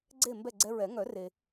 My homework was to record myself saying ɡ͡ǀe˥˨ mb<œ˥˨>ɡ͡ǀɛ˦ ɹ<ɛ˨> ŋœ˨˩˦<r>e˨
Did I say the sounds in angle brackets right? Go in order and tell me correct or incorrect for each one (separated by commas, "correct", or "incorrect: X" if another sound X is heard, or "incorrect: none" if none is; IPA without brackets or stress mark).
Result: incorrect: ɛ˥˨, incorrect: ɛ˨˩˦, correct